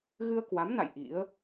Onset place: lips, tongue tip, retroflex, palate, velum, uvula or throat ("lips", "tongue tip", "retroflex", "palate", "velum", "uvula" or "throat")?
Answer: velum